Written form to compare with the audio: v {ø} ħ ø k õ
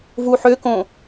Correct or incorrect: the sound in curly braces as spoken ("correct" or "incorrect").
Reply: incorrect